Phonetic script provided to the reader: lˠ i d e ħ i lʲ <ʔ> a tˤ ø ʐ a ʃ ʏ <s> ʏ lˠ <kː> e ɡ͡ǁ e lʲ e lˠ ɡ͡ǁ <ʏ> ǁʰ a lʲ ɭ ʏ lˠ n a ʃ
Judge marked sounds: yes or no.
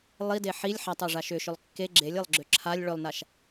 no, no, yes, yes

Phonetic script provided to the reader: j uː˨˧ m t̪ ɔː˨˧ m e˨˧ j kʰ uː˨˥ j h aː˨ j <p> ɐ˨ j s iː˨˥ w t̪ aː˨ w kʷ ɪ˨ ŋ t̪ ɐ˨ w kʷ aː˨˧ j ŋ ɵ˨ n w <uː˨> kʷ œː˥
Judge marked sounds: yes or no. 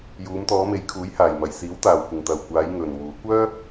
no, no

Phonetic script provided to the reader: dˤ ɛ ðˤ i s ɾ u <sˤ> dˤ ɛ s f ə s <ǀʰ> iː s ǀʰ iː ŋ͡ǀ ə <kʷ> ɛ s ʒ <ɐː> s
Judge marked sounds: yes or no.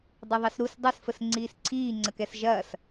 no, no, no, yes

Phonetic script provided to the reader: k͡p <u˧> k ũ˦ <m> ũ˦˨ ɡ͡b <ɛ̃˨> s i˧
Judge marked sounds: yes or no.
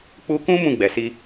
yes, yes, no

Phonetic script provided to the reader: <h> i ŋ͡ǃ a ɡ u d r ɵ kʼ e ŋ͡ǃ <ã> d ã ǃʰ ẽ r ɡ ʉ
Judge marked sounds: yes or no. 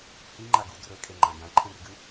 yes, yes

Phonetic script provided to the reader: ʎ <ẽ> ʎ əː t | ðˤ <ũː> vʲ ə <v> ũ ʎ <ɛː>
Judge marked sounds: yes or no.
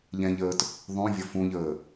no, no, no, no

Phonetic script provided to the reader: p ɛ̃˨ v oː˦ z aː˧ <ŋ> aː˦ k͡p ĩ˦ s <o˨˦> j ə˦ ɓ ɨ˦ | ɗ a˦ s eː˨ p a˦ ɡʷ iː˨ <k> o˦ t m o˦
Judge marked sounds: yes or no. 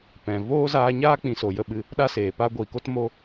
no, no, yes

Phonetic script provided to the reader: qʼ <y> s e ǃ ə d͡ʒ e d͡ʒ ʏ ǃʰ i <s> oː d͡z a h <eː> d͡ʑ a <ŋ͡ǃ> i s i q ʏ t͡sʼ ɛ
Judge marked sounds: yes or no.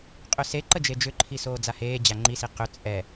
no, yes, yes, yes

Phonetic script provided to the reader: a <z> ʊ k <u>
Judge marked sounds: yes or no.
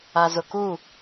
yes, yes

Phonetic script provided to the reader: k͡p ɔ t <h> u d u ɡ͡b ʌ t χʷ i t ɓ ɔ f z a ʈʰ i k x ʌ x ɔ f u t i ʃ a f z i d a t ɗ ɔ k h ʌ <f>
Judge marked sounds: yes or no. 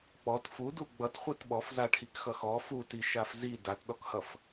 no, yes

